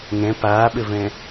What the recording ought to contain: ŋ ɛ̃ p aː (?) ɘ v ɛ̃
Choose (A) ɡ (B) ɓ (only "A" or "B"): B